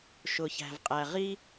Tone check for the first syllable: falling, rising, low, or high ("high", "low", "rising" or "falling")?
low